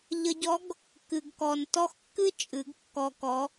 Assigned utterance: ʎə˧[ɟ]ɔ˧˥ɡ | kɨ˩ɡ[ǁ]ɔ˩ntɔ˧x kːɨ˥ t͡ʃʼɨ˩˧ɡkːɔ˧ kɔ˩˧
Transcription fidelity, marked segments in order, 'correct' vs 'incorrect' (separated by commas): correct, incorrect